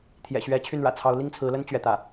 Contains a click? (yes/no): no